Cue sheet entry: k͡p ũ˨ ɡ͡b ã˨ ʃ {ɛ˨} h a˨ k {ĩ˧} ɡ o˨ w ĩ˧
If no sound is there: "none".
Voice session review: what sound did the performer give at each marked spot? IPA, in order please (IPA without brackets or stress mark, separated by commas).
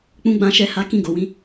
ɛ˨, ĩ˧